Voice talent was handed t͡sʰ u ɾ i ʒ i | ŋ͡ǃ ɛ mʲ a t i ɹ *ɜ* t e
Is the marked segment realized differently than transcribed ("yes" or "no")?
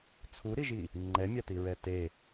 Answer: yes